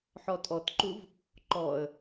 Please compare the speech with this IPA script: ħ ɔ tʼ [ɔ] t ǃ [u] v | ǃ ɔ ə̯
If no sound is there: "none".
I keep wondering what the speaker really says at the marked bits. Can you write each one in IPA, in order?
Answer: ɔ, u

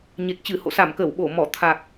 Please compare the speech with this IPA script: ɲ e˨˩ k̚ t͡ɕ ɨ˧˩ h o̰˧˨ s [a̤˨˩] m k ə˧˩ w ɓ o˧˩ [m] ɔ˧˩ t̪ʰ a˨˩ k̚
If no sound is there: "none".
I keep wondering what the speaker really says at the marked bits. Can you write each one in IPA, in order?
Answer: a˧˩, m

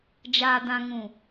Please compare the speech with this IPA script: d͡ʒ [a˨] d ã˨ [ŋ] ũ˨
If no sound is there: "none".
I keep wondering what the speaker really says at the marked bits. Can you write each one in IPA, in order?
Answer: aː˨, ŋ

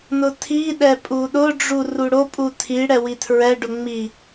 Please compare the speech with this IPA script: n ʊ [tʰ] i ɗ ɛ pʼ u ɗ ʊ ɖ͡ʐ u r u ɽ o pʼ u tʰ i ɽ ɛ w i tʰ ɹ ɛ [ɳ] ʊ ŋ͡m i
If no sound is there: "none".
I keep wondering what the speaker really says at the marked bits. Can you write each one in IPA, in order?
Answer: tʰ, ɖ

